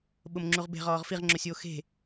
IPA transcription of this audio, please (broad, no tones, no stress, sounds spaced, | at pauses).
ɓ ʊ m ŋ͡ǁ u ʁ b e̤ ʁ ɔː ʁ f i ʁ ŋ͡ǁ o sʲ oː x e̤